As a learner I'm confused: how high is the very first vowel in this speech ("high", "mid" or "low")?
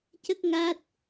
mid